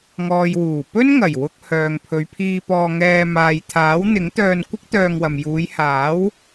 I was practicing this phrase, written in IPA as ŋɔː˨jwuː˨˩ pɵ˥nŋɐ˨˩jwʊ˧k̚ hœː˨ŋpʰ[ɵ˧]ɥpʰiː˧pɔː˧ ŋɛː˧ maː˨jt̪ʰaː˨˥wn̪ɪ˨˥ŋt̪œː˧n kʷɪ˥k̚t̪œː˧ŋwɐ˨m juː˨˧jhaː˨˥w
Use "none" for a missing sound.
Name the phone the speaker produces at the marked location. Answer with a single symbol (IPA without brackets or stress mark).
ɵ˨˧